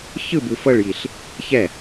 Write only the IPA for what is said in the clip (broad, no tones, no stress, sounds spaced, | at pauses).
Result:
ç ɯ b ɯ f ɤ ɭ j i ɬ | ç ɛ